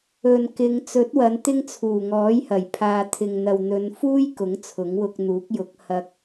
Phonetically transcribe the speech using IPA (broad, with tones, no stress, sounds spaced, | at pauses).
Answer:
ɵ˨ n k ɪ˨˧ ŋ t͡s ɵ˨˥ t̚ w ɐ˨˧ n t̪ ɪ˧ ŋ t͡sʰ uː˨˩ ŋ ɔː˨˥ j h ɐ˨˩ j pʰ aː˨ t̪ʰ ɪ˨ ŋ n̪ ɐ˨ w n̪ ɵ˨˧ n f uː˥ j k ʊ˨˥ ŋ t͡sʰ ʊ˨˥ ŋ w ʊ˧ k̚ n̪ uː˨˥ k̚ j ʊ˨˥ k̚ h ɐ˥ k̚